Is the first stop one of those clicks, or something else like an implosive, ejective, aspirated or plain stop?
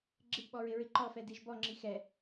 click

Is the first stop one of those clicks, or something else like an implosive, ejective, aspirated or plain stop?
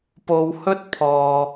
plain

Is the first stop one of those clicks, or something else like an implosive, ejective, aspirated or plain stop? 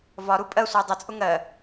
ejective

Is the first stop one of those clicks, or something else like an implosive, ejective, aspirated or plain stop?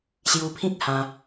aspirated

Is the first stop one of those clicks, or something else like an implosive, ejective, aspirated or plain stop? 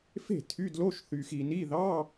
aspirated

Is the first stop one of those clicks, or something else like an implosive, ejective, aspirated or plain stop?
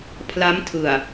aspirated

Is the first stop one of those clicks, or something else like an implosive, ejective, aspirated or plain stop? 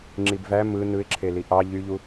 click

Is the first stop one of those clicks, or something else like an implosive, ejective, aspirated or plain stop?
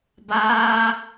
plain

